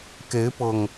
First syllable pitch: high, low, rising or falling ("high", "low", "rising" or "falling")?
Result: rising